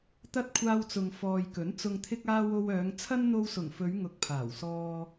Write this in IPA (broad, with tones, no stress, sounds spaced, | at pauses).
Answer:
t̪ ɐ˧ t̚ kʷʰ aː˧ w t͡s ʊ˨ ŋ f ɔː˨ j k ɵ˨˥ n t͡s ʊ˨ ŋ t̪ʰ ɪ˧ k̚ aː˧ w o˧ w œː˨˧ ŋ t͡sʰ ɐ˥ n n̪ o˧ w s ʊ˨˩ ŋ f ɵ˨˧ ɥ ŋ ʊ˨ k̚ pʰ aː˨˩ w s ɔː˧